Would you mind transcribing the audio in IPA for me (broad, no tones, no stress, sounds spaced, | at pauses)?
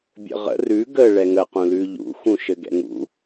bʲ ə̰ ʁ ə̰ r ʉ ɡ ə ɭ ɛ ŋ ə q ũ l ʉ ʎ ṵ x ũ ʃ ɘ ɡ ɛ̰ ŋ ṵ